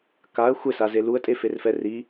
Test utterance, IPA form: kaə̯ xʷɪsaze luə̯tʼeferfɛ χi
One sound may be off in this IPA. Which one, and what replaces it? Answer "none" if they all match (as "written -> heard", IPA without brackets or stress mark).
χ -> r